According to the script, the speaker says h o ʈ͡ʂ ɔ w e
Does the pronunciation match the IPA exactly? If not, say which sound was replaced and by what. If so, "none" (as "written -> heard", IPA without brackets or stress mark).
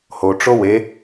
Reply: ɔ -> o